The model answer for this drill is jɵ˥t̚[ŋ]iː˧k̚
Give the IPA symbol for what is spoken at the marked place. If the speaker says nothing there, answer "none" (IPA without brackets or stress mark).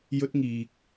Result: ŋ